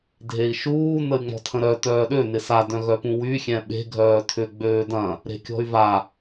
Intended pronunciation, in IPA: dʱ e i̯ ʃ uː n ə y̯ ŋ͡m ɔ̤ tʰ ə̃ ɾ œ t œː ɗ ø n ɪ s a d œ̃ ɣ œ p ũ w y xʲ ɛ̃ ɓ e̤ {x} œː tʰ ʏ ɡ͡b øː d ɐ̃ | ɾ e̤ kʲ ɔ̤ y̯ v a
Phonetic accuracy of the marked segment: incorrect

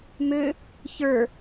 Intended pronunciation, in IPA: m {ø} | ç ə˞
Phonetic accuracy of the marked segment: correct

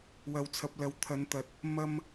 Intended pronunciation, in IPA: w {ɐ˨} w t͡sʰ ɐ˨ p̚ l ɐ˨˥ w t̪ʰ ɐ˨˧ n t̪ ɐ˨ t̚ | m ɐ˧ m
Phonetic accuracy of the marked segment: correct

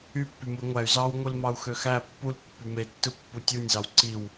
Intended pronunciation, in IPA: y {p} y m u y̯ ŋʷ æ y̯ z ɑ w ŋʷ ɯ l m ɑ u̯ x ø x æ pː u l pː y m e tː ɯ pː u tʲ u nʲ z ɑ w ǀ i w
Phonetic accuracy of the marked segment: incorrect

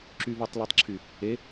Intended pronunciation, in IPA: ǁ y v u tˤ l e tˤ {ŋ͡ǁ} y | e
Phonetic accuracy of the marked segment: incorrect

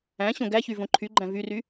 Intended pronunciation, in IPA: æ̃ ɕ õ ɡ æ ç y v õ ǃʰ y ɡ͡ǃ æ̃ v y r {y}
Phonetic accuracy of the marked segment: correct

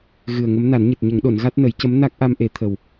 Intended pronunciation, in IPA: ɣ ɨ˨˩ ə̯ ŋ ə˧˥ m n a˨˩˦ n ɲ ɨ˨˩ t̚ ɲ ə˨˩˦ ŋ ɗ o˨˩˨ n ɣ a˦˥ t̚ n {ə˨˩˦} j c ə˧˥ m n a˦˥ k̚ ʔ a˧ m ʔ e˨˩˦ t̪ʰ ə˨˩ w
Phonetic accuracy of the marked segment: correct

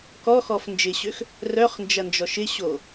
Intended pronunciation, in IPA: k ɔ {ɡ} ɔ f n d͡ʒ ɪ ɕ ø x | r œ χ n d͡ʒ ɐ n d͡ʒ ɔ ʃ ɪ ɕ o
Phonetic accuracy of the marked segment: incorrect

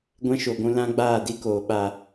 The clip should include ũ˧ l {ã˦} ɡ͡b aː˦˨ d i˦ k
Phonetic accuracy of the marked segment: correct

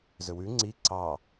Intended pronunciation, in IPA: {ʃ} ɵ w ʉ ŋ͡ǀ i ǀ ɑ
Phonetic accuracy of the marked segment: incorrect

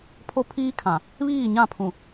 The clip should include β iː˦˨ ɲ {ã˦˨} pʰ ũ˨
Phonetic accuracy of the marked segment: correct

